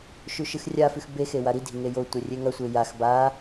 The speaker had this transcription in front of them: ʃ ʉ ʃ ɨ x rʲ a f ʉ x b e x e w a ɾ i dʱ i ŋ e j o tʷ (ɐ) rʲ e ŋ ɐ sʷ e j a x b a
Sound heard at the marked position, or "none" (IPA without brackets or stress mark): ɐ